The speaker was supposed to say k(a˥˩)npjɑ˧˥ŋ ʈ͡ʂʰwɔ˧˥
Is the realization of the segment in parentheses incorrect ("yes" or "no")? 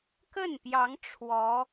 yes